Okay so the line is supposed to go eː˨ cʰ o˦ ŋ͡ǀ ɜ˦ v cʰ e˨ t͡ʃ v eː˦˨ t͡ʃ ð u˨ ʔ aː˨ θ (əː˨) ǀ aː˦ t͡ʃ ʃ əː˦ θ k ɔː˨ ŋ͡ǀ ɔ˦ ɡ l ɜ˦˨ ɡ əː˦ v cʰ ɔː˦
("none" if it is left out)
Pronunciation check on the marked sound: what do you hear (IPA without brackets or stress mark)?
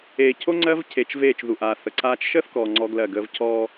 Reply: ə˨